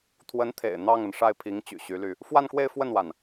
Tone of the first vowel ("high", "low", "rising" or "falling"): rising